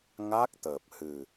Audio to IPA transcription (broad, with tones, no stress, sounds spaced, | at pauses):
ŋ a˦˥ k̚ t̪ əː˨˩ p̚ h ɨ˨˩